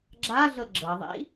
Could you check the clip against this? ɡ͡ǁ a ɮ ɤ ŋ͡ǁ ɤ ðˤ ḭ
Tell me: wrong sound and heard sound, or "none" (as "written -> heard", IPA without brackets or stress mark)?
ŋ͡ǁ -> ɡ͡ǁ